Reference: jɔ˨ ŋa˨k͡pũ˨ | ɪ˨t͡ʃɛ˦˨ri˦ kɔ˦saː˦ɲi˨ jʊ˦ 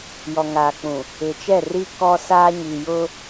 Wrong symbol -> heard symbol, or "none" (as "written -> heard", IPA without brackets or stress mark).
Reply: none